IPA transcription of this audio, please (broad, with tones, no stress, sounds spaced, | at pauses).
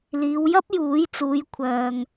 l iː˨˧ w j ɐ˥ p̚ j uː˨˥ j t͡s uː˨˧ j kʷʰ œː˨ ŋ